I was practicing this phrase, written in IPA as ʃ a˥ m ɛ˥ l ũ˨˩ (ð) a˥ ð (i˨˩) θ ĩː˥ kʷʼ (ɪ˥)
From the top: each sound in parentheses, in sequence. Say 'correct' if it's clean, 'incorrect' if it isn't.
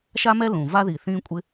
incorrect: v, correct, correct

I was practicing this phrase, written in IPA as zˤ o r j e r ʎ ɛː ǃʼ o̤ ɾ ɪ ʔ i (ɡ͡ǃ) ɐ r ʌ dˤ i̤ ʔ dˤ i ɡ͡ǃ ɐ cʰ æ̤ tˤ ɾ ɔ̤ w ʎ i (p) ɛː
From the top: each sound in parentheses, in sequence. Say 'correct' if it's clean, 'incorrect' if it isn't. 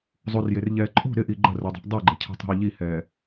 correct, incorrect: h

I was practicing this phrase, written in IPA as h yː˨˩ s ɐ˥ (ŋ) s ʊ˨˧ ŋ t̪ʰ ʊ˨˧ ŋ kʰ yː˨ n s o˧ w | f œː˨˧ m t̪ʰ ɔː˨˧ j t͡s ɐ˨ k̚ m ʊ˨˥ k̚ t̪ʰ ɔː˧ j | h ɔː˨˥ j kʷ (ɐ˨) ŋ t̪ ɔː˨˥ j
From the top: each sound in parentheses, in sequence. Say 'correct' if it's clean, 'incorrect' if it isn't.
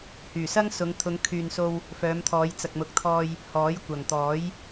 correct, incorrect: ɐ˨˩

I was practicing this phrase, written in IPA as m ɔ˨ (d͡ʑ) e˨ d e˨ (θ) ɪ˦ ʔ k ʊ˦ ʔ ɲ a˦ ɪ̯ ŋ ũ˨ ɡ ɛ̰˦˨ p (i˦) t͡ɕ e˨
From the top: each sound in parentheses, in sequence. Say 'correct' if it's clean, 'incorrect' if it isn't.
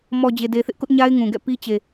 correct, correct, correct

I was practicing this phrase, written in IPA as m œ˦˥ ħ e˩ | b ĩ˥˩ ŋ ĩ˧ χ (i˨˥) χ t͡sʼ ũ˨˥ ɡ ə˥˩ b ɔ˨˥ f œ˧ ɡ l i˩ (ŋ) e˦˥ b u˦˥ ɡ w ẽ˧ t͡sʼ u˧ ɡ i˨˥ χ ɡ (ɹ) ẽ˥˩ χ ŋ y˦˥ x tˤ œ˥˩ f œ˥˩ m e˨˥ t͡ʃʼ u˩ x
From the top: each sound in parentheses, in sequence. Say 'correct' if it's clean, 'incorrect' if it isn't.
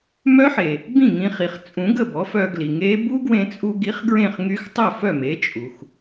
incorrect: i˩, correct, correct

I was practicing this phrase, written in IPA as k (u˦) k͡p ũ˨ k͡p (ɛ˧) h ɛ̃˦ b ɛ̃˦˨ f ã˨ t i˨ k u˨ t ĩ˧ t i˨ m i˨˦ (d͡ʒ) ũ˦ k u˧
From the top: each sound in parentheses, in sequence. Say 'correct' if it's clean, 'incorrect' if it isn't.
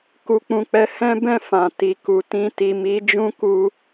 incorrect: u˨, incorrect: ɛ˨˦, correct

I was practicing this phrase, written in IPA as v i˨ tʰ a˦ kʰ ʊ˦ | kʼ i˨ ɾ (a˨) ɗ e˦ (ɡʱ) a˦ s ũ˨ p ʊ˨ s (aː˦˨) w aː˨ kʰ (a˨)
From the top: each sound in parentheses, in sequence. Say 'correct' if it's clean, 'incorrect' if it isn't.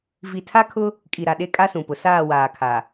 correct, incorrect: kʼ, correct, correct

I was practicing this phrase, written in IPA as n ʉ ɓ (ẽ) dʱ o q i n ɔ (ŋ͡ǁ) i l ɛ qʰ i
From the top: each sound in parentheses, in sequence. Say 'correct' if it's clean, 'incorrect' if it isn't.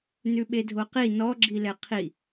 incorrect: e, incorrect: ɡ͡ǁ

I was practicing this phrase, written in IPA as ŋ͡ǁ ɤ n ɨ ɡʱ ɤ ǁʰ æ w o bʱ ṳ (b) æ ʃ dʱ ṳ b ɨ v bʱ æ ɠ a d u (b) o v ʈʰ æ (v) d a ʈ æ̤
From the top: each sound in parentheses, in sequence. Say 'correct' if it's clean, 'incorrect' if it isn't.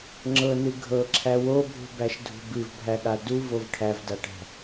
correct, incorrect: v, correct

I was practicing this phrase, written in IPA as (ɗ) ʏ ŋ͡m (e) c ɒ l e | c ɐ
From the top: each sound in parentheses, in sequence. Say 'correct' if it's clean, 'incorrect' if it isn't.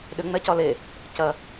correct, incorrect: ɛ

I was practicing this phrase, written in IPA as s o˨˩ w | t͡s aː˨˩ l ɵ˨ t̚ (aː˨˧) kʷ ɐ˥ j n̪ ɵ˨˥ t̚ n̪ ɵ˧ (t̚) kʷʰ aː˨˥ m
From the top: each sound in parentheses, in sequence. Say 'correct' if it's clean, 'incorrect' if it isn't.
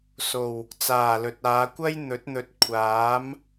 correct, correct

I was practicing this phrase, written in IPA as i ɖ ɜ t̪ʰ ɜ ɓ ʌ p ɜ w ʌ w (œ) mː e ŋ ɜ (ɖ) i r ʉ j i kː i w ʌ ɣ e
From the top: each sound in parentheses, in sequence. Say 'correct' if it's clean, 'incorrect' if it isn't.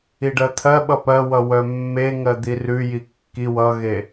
correct, incorrect: d̪

